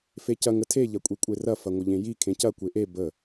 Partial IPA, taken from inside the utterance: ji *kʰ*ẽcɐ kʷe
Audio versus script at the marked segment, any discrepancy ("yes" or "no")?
no